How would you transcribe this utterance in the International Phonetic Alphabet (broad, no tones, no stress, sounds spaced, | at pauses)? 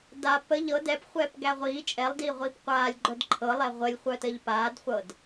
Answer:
d a p ə ʎ ɤ d ɛ p χʷ ɛː p ɡ æ ʁʷ iː t͡ʃʼ ɛ lˠ d iː ʁʷ iː p qʷ aː lʲ ɡ͡ǃ œ d ǃʰ ɤ lˠ ɛ ʁʷ ə lʲ χʷ œ t ə ʎ p aː d χʷ ɤ d